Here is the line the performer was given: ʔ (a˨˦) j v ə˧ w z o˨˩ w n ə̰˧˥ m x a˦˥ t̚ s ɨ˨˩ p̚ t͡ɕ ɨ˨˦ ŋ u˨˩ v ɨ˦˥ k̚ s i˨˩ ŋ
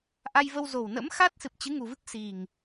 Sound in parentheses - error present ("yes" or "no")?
yes